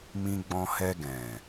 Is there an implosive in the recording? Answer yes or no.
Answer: no